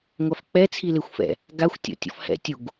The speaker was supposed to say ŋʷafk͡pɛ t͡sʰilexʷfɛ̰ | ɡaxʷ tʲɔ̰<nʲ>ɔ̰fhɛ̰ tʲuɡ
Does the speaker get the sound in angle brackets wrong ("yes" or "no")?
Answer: yes